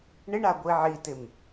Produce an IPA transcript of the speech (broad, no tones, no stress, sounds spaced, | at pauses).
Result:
ɳ ɪ ɳ a ɡʷ i ʕ i t ɪ m